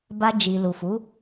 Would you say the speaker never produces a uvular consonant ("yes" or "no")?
yes